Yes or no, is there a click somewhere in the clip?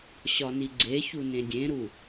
yes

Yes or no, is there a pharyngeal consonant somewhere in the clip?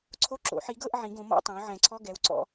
yes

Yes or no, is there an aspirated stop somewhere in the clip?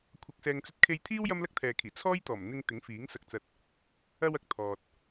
yes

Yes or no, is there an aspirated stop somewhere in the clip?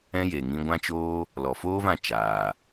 no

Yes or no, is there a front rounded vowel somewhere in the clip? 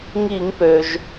yes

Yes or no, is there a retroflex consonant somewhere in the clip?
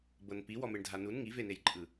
yes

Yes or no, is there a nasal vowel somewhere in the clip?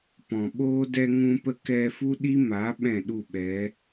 yes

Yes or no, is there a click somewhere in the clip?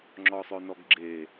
yes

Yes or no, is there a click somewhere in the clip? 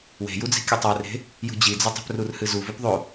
no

